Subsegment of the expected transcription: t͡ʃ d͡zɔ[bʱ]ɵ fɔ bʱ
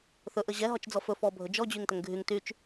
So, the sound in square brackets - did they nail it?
no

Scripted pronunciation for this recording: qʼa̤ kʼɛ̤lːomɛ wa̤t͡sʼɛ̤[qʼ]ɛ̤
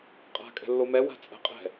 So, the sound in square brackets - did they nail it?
yes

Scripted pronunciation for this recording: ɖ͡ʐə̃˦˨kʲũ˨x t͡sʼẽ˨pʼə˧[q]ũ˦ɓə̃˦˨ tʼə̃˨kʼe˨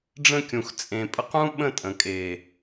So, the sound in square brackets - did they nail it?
yes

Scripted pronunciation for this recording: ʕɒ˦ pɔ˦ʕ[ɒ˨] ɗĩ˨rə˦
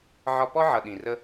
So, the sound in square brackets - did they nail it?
no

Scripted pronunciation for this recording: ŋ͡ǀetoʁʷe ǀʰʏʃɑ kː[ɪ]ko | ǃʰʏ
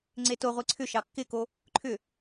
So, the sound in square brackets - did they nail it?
yes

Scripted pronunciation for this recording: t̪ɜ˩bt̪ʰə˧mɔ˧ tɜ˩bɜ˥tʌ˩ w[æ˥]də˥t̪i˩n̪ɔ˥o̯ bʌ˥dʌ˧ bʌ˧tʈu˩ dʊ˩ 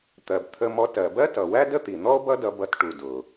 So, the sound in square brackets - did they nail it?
yes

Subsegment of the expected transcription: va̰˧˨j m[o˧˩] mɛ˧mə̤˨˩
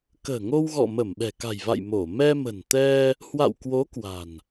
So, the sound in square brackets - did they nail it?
yes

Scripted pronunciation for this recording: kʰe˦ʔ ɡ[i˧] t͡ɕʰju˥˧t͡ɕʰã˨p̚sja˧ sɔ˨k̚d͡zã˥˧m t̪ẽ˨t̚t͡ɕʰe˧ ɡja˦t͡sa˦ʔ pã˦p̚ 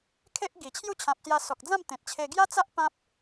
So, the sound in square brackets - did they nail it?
no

